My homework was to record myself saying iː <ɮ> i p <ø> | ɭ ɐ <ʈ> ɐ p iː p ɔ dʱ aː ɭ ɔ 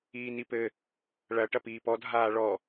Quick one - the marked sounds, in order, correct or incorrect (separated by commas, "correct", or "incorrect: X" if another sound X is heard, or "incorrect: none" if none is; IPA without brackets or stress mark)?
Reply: incorrect: n, incorrect: ɘ, correct